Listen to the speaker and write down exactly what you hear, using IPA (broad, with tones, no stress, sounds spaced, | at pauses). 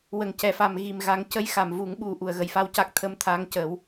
w ə˨˩˨ ŋ c ɛ˨˩˨ f a˨˩˨ m ɣ i˨˩ m ɣ a˨˩˦ ŋ c ə˧˥ j x a˨˩˨ m v u˨˩˦ ŋ ɓ u˧ ʔ u˨˩˨ ə̯ ɣ ə˨˩ j f a˧ w c a˦˥ k̚ t̪ʰ ə˧˥ m t̪ʰ aː˧˥ ŋ c əː˨˩˦ w